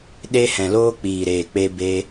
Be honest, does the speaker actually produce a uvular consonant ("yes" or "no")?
no